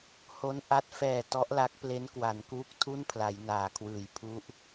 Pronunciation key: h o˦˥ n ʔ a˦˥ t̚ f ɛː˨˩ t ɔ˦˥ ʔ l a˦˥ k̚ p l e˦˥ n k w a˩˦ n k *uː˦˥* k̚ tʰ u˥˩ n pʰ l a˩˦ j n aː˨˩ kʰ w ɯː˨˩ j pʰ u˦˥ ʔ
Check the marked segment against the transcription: correct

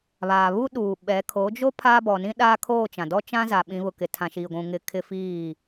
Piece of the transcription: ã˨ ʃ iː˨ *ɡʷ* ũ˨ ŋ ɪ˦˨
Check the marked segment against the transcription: correct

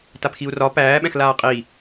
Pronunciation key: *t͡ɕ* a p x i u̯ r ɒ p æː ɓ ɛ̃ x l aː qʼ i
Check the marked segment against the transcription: incorrect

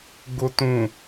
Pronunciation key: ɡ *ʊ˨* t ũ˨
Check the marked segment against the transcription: correct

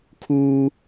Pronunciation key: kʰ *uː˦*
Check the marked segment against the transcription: correct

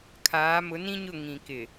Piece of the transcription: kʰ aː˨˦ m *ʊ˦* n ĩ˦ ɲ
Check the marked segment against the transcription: incorrect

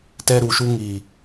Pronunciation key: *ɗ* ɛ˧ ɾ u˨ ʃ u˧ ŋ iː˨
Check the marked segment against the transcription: incorrect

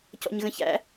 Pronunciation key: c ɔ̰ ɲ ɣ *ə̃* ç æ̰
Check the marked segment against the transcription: correct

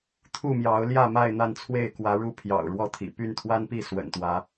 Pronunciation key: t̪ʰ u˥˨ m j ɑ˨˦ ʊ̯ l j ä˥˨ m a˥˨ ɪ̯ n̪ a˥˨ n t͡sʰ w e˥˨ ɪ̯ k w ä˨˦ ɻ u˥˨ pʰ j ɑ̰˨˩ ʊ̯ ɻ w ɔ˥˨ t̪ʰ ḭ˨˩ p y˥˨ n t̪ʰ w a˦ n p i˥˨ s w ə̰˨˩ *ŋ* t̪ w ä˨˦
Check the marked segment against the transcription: incorrect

